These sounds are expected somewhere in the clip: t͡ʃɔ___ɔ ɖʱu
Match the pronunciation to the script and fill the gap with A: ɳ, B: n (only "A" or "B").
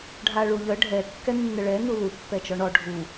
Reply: A